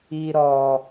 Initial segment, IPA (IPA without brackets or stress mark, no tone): i